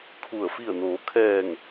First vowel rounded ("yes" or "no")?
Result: yes